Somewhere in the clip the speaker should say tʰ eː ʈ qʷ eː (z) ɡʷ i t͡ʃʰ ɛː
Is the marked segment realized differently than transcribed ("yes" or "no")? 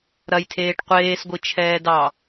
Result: yes